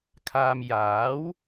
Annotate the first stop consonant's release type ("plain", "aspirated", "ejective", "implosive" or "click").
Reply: aspirated